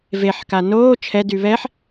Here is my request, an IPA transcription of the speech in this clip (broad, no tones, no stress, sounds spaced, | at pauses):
v e ħ k a n oː t͡ʃʰ ɛ d y β ɛ ħ